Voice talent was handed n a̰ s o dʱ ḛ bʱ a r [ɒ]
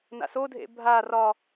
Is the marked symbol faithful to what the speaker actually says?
yes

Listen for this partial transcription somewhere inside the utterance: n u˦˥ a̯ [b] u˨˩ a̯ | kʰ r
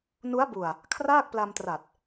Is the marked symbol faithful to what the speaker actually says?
yes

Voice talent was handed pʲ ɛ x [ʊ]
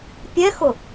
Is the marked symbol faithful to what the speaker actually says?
yes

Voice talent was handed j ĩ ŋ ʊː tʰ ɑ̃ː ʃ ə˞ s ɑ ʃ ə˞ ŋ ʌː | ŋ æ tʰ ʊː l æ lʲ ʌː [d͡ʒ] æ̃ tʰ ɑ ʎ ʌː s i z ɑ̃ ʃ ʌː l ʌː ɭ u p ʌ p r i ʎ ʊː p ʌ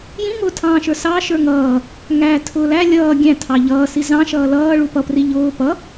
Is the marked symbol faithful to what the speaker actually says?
no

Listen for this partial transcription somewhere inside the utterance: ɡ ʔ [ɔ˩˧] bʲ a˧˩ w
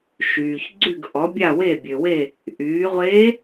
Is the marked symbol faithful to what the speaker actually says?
yes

